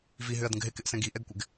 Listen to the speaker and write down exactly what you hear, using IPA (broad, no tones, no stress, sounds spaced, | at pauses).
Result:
v i ɦ ʏ ɐ̯ d ə̃ ɡ ɦ ɪ k ɪ ʔ s ɛ̃ ɡ i ʔ ɛ ɡ kʷ ɪ ɡ